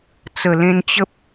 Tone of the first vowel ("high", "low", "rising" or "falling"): low